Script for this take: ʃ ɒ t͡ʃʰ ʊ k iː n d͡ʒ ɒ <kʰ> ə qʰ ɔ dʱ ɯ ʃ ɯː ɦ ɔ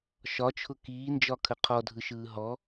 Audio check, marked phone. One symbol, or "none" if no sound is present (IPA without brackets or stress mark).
kʰ